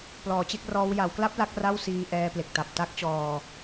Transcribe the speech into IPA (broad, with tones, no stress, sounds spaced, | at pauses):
p l ɔː˩˦ t͡ɕ e˦˥ k̚ r ɔː˦˥ w j a˩˦ w k l a˦˥ p̚ l a˦˥ k̚ r a˥˩ w s iː˧ ʔ ɛː˧ p l e˨˩ k̚ t a˨˩ p̚ t a˦˥ k̚ t͡ɕ ɔː˧